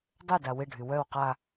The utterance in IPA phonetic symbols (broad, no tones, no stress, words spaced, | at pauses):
dˤøda wɪɖʱy wœw qa